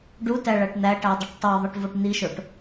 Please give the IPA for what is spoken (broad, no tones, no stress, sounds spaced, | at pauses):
ɖ u t æ ɭ æ ʈ n̪ æ ʈ æ dˤ i ʈ tˤ o ðˤ i ʈ v o ʈ n̪ i ʃ o ʈ